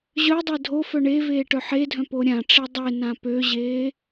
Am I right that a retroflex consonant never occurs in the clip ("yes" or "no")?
no